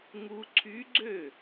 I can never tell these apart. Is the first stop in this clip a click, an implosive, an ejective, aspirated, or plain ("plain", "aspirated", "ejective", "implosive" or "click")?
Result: click